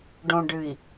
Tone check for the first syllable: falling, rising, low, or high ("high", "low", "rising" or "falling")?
low